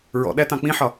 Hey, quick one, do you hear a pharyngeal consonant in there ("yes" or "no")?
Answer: yes